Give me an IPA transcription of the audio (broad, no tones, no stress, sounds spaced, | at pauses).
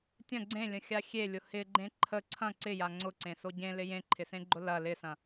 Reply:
tʲ ɐ̃ ɡ͡ǀ ẽ lʲ ə̃ xʲ a xʲ e lʲ ʊ h ɪ ɡ͡ǃ ẽ ǃʰ ə ǀʰ ɐ̃ ǀ ɪ j a ŋ͡ǀ ʊ ǀ ẽ s o ɟ ẽ l ɪ j ẽ ǃʰ ɪ s ẽ ɡ͡ǃ ʊ l ɐ l ɪ s ɐ̃